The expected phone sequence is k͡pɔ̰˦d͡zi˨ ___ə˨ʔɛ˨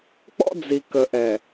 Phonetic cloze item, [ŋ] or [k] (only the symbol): k